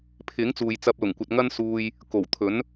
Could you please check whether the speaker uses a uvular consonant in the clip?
no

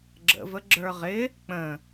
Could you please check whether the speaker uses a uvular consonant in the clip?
yes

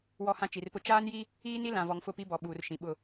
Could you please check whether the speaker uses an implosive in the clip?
yes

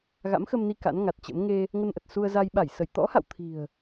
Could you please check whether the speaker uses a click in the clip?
no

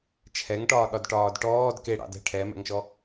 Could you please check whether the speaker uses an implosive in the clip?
yes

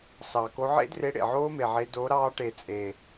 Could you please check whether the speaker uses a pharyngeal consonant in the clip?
yes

